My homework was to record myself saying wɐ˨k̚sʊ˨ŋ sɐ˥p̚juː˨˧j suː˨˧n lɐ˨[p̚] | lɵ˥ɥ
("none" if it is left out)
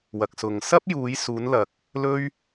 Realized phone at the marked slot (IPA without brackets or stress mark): k̚